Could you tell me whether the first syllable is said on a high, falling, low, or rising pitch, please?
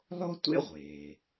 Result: high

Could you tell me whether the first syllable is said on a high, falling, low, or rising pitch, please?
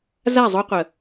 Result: falling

